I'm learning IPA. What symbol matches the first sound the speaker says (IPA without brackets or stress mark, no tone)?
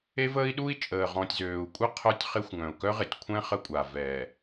e